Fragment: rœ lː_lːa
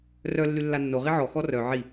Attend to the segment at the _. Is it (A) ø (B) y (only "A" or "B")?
B